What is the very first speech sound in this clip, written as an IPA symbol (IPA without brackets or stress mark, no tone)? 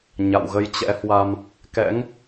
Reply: ɲ